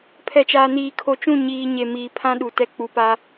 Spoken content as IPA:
pʰɛ˨t͡ʃaː˨niː˨ kʰo˨t͡ʃũ˦˨ ɲiː˨ ɲe˨ miː˨pʰã˦ ɗu˨tɛ˦ k͡pu˨pa˦

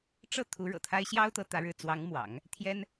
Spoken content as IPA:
ʈ͡ʂɤ˥˩ t̪ʰu˧˥ɻɤ̰˨˩t̪ʰa˥ɪ̯ ɕjɑ˥ʊ̯t̪ɤ˧˥ t̪ä˧˥ɻɻ̩˥˩ t͡swɑ˧˥ŋmwɑ̰˨˩˦ŋ | t̪ʰjɛ˥n

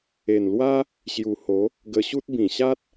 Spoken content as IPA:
e˨˩nlwa˦ | ɕju˨˩ho˨˦ | ɡə˧ɕu˦t̚ bĩ˨˩ɕa˦t̚

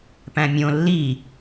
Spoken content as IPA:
pæ̃mʲõ lːi

